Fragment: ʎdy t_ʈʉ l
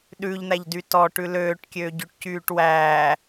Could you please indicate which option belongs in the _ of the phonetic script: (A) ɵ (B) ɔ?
B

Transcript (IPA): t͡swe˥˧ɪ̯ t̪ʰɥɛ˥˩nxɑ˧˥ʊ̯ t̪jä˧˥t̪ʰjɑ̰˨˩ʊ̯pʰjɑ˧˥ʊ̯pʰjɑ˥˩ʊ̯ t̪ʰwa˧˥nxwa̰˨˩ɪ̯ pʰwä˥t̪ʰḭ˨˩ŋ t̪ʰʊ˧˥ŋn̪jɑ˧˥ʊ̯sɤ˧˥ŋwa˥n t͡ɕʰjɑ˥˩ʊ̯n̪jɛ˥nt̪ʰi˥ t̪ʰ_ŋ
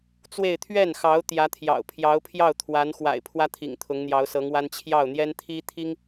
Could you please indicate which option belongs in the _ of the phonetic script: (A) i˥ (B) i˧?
A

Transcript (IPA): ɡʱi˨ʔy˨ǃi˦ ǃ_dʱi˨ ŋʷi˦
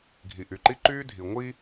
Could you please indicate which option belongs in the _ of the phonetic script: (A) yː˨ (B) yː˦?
B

